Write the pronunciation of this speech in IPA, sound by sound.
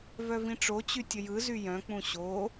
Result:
v œ v ĩ ʈ͡ʂ o t͡ɕ y tʲ ə j ɯ z y j œ̃ k͡p ũ ɕ o

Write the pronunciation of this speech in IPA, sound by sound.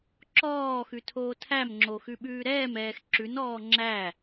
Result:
ǁ ɔː x ʉ tʰ oː tʰ æ m ŋ͡ǁ o x ʉ ɓ ʉː ɾ ɛː m ɛː x ǁ ʉ n ɔː ŋ͡ǁ æ

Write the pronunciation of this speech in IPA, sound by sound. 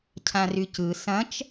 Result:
cʰ ã r y c ɯ s ɐ̃ t͡ʃ

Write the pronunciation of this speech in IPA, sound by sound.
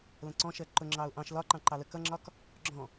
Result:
l ə̃ ǀ ɔ̃ ʃ ɜ ǃ ʊ ŋ͡ǁ ɑ ʊ̯ ʔ ɑ̃ ʃ l ɒ ǃ ɑ̃ ǃ ɑ l ə k ʌ ŋ͡ǁ ɒ k | ɡ͡ǁ ɔ̃

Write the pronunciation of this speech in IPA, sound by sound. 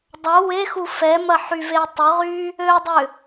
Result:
dˤ ɐ w e x u f ɛ m ɐ ħ y v e tˤ ʏ ʁ y | ø dˤ ʏ

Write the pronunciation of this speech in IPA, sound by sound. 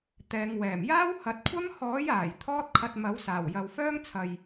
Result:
t̪ ɛː˨˧ ŋ w ɛː˨˩ m j aː˥ w h ɐ˨˥ t̚ kʷʰ ɐ˥ m h ɔː˨˥ j aː˨˩ j t̪ʰ ɔː˥ t̚ kʰ ɐ˧ t̚ m ɐ˨˥ w s aː˨˩ w j ɐ˨ w f œː˥ ŋ t͡sʰ ɐ˨ j

